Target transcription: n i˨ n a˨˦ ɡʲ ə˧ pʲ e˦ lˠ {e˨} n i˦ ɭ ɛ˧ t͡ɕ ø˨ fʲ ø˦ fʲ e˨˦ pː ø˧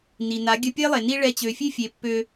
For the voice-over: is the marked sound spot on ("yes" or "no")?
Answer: yes